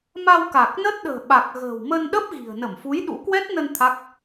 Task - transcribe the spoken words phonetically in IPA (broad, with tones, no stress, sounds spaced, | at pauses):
m a˧ w k a˨˩ k̚ n ə˦˥ t̚ ɗ ə̤ː˨˩ ɓ a˨˩ k̚ ɣ ə̤ː˨˩ w m ə˧ n ɗ ə˦˥ p̚ ɣ i̤˨˩ ə̯ n ə˧˩ m f u˨˦ j ɗ ṵ˧˥ k w ɛ˦˥ t̚ n ə˧ n t̪ʰ a˦˥ k̚